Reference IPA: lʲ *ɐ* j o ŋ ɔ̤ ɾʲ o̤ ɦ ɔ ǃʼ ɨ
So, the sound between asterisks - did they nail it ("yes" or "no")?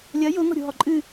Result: yes